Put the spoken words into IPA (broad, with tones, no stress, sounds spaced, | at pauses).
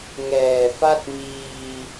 ŋ ɛː˨˩ f a˥˩ t̚ m iː˧